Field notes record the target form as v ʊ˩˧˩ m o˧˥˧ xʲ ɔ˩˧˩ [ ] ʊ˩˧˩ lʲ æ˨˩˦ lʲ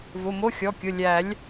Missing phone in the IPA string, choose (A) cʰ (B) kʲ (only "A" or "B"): B